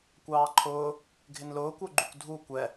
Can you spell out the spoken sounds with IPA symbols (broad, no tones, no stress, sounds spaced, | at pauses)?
kʷ ɑː ǃʰ ʊː | ɡʱ ɪ n l ʊː kʷ ə˞ ɡ͡ǃ u kʷ dʱ u kʷ ɛ